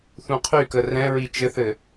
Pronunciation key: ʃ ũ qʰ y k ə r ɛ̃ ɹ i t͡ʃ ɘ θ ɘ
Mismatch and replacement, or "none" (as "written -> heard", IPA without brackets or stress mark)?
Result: ʃ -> θ